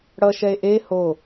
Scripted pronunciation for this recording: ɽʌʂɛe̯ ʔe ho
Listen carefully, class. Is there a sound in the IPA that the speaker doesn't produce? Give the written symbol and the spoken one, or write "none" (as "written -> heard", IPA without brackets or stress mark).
ʂ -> ʃ